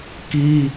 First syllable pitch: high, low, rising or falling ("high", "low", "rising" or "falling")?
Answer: high